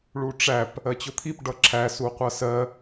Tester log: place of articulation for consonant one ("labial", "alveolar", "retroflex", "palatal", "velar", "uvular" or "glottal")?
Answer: retroflex